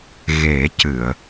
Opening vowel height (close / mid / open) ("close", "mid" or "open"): mid